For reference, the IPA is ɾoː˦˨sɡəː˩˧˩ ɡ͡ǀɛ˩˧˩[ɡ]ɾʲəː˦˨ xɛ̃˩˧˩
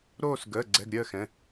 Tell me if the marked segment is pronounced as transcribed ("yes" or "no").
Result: yes